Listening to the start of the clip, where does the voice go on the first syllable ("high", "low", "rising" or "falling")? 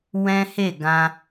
high